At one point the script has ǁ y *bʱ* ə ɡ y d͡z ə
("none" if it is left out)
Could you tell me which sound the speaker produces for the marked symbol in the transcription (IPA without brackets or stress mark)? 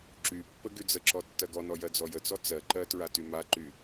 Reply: pː